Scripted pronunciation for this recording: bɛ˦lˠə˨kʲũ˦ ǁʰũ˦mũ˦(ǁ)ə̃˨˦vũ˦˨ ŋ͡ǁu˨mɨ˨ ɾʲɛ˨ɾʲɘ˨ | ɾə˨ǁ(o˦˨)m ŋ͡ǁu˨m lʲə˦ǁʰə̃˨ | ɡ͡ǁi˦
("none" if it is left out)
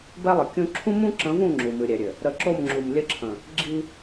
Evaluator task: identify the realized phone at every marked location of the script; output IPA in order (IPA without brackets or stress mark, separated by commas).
ǁ, o˦˨